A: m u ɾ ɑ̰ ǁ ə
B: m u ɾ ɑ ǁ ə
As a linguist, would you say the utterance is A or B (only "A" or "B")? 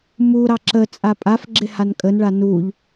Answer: B